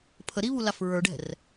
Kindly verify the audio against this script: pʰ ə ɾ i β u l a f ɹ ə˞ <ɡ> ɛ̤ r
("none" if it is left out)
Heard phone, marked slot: ɖ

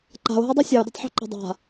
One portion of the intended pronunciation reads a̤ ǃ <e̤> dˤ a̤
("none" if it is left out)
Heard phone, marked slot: e̤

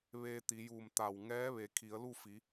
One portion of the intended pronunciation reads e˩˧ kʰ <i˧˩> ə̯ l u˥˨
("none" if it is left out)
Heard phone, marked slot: i˩˧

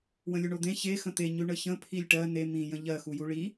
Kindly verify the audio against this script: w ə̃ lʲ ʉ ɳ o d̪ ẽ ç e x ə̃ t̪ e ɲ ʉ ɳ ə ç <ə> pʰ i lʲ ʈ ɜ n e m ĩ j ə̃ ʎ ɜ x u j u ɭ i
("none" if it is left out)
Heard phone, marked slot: ə̃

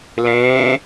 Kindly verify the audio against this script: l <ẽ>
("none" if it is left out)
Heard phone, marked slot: ẽ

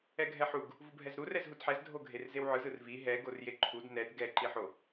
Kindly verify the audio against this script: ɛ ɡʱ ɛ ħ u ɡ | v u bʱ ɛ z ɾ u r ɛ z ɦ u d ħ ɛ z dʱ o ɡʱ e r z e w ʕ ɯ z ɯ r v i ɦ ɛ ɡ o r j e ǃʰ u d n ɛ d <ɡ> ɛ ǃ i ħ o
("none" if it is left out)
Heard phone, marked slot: ɡ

